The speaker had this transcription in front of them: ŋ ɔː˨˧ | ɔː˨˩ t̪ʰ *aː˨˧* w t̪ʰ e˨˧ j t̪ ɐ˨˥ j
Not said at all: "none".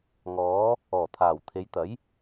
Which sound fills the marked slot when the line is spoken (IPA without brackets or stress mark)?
aː˨˩